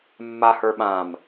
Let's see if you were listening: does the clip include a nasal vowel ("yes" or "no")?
yes